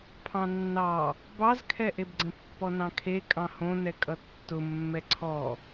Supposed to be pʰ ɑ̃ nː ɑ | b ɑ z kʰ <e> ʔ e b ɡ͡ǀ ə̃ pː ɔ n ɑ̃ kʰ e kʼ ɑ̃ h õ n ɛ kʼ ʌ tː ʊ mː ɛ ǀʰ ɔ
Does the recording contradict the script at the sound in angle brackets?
yes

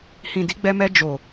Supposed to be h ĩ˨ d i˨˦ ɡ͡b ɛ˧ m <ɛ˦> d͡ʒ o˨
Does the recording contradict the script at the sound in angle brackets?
yes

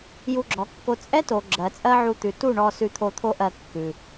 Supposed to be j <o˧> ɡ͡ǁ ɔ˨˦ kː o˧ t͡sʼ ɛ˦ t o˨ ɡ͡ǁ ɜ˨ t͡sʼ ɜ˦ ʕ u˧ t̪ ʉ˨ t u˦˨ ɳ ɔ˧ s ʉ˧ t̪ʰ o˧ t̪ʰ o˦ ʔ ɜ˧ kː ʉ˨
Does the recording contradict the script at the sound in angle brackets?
yes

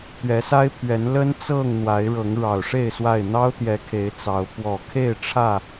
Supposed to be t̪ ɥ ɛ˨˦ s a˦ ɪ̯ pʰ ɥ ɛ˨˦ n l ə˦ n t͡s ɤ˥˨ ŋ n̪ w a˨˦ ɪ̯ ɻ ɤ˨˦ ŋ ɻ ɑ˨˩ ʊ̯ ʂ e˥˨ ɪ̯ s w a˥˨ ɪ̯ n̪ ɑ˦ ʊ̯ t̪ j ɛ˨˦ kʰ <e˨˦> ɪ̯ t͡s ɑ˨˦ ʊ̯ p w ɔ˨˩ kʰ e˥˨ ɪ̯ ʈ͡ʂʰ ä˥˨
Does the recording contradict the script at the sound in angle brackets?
no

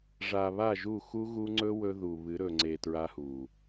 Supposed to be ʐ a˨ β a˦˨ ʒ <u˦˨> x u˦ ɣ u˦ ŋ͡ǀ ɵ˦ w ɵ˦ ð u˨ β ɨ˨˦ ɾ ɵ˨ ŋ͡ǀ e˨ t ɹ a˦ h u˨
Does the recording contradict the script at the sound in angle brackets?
no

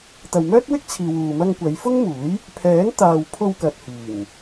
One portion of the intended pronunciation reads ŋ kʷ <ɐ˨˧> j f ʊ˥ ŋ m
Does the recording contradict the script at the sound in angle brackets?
no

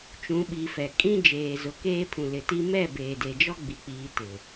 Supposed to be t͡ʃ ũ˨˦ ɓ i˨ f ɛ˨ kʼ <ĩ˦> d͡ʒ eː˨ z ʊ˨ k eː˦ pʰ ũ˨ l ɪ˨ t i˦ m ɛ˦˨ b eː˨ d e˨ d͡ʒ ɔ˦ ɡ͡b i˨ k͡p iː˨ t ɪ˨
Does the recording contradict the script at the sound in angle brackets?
no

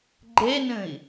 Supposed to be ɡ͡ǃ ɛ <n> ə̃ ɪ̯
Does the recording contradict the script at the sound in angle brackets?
no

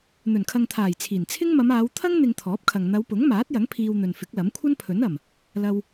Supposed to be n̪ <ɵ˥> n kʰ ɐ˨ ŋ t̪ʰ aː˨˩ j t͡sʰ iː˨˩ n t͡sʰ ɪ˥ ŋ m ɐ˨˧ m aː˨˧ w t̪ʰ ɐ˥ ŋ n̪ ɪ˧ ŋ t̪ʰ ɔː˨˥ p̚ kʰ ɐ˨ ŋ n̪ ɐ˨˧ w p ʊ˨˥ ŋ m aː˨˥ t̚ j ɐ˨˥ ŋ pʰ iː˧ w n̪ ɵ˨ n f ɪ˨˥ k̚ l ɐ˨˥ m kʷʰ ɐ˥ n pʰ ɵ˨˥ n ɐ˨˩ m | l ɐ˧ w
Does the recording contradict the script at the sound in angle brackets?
yes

